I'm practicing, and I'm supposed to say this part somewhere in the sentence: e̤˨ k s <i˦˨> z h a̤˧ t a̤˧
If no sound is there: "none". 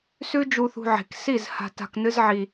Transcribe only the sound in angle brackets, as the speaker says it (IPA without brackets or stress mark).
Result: i˦˨